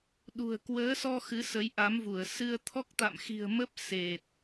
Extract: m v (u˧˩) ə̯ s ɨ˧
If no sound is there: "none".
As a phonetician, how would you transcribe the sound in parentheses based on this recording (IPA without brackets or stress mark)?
u˧˩